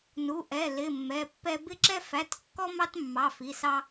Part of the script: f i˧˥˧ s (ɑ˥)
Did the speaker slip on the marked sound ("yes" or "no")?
no